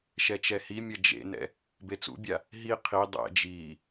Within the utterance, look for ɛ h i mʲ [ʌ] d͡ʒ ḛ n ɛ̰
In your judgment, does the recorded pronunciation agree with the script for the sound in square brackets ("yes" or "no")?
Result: yes